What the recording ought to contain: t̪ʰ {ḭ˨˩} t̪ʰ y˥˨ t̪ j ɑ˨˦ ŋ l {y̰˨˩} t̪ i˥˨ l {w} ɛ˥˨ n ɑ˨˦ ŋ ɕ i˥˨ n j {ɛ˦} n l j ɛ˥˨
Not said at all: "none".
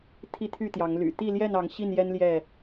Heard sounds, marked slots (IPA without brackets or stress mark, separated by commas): i˦, y̰˨˩, j, ɛ˦